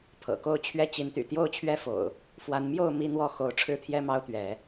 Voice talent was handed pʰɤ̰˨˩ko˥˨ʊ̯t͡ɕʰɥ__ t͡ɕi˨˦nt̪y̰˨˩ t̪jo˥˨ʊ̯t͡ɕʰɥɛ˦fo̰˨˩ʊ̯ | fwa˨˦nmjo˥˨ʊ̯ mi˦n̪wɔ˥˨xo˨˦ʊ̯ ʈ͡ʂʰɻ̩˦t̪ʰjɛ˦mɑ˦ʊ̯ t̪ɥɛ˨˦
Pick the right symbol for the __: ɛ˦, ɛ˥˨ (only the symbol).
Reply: ɛ˦